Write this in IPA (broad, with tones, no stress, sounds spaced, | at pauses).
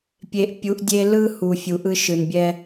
pʲ e˨ ʔ pʲ u˨˦ ʔ dʲ e˦ l ɯ˦ h u˨ fʲ u˨ ʔ ɯ˦ ʃ ɯ˨ n bʲ ɛ˦